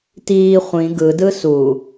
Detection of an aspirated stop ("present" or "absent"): absent